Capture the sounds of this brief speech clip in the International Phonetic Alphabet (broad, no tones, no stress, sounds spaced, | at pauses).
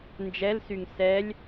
n d͡ʒ ɛ l s y ŋ s ɛ lʲ